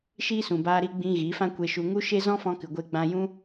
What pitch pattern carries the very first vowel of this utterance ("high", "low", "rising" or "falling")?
high